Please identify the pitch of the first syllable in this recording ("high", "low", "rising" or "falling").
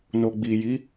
low